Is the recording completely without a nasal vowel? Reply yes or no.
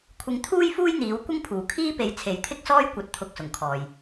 yes